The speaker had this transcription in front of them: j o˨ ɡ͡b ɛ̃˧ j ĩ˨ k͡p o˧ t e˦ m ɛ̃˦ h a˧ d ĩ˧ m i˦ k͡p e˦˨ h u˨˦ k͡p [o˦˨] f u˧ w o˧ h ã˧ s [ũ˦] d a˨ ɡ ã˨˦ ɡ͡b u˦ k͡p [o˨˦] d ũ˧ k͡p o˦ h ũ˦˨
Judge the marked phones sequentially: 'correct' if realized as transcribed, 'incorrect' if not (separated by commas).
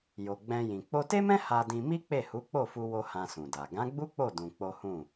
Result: correct, incorrect, incorrect